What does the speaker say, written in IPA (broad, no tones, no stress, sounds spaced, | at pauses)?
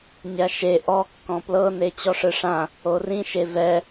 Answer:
nʲ a ʃ e ʔ ɔ kː ɔ̃ p l ɤ n e t͡ɕ ɔ ʂ ɯ ʂ ã | o r ĩ ʃ e v ɛ